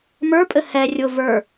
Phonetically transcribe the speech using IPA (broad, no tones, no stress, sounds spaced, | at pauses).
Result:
m ə˞ pʼ ɘ h ɛ rʲ ʊ v ə˞